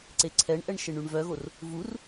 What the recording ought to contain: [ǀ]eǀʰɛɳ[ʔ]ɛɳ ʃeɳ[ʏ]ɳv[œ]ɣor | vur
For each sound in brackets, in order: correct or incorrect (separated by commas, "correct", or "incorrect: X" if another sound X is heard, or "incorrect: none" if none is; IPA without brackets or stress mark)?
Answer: correct, correct, incorrect: y, correct